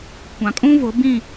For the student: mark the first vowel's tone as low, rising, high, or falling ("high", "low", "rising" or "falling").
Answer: low